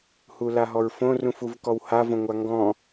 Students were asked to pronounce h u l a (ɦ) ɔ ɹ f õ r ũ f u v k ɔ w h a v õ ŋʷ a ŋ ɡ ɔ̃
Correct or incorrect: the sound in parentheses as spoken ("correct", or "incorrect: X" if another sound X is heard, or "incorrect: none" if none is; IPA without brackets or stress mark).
correct